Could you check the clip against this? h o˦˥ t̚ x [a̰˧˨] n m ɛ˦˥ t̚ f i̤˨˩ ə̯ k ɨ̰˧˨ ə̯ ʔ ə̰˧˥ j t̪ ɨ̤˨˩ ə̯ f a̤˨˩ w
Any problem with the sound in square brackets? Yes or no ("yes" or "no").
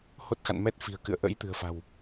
no